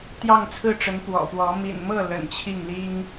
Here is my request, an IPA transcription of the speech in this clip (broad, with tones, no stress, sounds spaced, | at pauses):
t̪ j ɑ˥˧ ŋ t͡sʰ ɹ̩˥˩ ʈ͡ʂ ə˧˥ n p w ɔ̰˨˩ p w ɔ˧˥ m ḭ˨˩ n m ɤ˥˩ l ə̰˨˩ n t͡ɕʰ i˥˩ ŋ l i˥ ŋ